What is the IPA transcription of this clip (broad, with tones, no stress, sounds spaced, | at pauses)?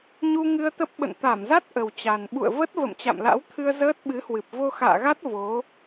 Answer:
ɲ u˧ ŋ ɨ˧ ə̯ t̪ ə˦˥ p̚ ɓ ə̰˧˨ n t̪ a˧˩ m z a˦˥ t̚ ʔ ə˨˩ w t͡ɕ a˨˩ n ɓ ṵ˧˨ ə̯ v ə˦˥ t̚ v ə̰˧˨ m t͡ɕ a̰˧˨ m l a̰˧˥ w t̪ʰ ɨ˧ ə̯ z əː˦˥ t̚ ɓ ɨ˨˦ h w ɨ˨˩ p̚ v o˧ x a̰ː˧˨ ɣ a˦˥ t̚ v o˨˦